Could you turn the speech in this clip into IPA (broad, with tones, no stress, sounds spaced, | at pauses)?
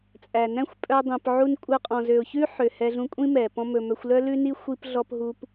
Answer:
t͡sʼ æ˨ n æ̃˦ xʷ pʼ œ˧ dˤ ĩ˨ p ʕ u˧ n kʷʼ œ˧ qʼ ɔ̃˨ z ø˨ ʊ̯ ç ʉ˦ ħ ø˨ h ɛ˧ ɮ ũ˧ kʷʼ ĩ˦ m ɛ˨ p ɔ̃˦ m ɵ˧ m œ˧ xʷ l œ˦ l ʉ˦ n i˦ xʷ i˧ p ɮ ɔ˧ p ɦ u˧ p